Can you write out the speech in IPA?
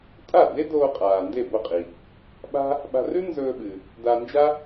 tʼ a˥˩ d e˥ d oː˧ qʼ aː˩ n d e˥˩ b o˥˩ qʼ i˩ | ɓ a̤˥ | ɓ a̤˧ r ʉ˥ n z ɵː˧ ɓ ɨ˩ | d a˧ n d͡ʒ a˥

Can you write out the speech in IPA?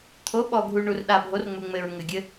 t̪ʰ o˨˦ ɓ ɔ˨ ɡʱ u˨ ɳ u˨ r ɗ a˨ bʱ o˨˦ r ŋ͡m u˨ ŋ͡m ɘ˨ ɹ ŋ ɘ˨ ɡʲ ɘ˦

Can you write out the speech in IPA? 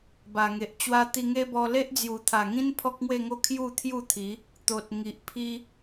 b a˨˩ ŋ e˨ ʔ t͡ɕ w a˦ t̪ i˧ ŋ e˦ b ɔ˧ l e˦ ʔ d͡z j u˨˩ t̪ʰ a˨˩ ŋ ĩ˦ n pʰ ɔ˦ k̚ ŋ w e˥˧ ŋ o˦ kʰ j u˥˧ t̪ʰ j u˥˧ t̪ʰ i˨˦ | t̪ o˨ t̚ ŋ i˨ ʔ pʰ i˦

